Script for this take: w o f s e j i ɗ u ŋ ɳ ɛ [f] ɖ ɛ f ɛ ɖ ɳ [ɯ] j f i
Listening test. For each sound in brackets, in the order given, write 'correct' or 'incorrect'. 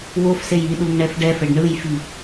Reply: correct, correct

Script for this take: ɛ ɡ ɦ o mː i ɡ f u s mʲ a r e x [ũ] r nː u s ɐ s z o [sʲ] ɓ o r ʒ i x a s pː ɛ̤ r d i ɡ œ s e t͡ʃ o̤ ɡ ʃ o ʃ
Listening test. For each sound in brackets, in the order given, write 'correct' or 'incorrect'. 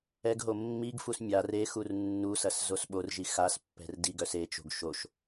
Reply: incorrect: u, incorrect: s

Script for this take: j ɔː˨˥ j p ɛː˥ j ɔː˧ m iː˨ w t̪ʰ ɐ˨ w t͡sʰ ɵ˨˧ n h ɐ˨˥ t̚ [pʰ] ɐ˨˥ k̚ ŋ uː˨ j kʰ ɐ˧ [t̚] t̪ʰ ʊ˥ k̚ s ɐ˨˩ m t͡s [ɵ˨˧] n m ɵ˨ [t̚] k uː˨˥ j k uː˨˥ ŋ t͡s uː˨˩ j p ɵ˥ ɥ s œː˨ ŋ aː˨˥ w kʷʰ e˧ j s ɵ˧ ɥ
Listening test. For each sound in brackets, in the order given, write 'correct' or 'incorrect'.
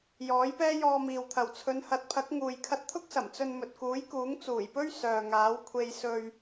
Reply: correct, correct, incorrect: ɵ˧, correct

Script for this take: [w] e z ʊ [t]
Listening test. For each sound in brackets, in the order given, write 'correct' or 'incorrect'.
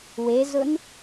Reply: correct, incorrect: n

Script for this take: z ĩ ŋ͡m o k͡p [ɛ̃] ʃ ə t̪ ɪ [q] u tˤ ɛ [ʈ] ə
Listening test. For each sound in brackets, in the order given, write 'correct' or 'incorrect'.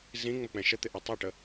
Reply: correct, incorrect: ʔ, correct

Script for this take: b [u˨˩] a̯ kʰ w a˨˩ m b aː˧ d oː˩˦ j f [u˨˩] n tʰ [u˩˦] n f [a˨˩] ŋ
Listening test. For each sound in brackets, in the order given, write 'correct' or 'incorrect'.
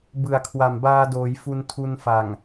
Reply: incorrect: ɯ˨˩, incorrect: u˧, incorrect: u˧, correct

